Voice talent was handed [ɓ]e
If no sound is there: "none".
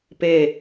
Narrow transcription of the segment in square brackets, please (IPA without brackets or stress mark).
p